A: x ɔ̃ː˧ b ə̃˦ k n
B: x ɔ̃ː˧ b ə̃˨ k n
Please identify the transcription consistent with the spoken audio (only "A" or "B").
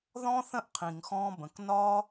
B